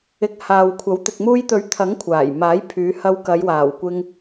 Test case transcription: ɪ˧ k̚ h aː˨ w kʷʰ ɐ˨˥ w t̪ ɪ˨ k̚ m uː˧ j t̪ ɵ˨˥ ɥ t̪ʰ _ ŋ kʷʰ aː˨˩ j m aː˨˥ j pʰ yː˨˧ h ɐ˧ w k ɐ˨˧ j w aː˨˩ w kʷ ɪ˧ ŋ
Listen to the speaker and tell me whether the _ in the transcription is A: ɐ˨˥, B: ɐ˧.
A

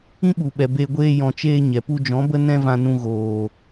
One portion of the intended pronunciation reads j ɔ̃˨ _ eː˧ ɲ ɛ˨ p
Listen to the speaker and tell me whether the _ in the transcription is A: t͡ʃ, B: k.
A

